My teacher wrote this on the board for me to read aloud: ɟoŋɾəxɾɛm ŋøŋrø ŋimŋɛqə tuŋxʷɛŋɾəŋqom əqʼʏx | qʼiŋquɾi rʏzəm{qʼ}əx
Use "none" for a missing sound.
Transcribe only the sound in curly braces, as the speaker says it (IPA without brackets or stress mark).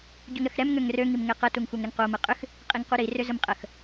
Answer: qʼ